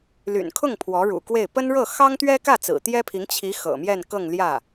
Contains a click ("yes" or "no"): no